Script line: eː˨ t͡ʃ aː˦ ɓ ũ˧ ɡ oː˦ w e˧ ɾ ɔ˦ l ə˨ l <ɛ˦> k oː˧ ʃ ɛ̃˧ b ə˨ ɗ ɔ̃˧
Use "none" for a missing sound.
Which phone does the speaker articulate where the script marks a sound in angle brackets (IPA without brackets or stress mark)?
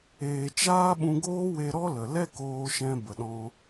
ɛ˦